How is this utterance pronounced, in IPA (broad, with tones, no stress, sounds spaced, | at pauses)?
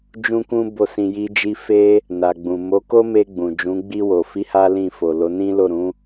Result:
d͡ʒ ũ˦ k ũ˦ b o˦˨ s ĩ˧ j i˦ d͡ʒ i˦ f e˦ | n a˨ ɡ͡b ũ˨ m o˨˦ k o˦ m e˧ ɡ͡b ũ˨ d͡ʒ ũ˨˦ ɡ͡b i˧ w o˨ f i˨˦ h a˦ l ĩ˦˨ f o˨ l o˨˦ n ĩ˦ l o˦˨ ɾ ũ˨˦